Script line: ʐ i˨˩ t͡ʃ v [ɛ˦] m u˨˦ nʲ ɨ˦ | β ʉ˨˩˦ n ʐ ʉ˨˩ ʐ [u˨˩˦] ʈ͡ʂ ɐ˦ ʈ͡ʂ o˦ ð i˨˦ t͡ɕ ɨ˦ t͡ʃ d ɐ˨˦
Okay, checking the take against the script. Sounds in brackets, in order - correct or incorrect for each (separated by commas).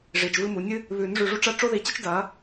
incorrect, incorrect